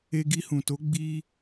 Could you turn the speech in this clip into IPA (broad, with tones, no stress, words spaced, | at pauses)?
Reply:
e˧ɡi˧hũ˨to˨˦ ɡ͡bi˦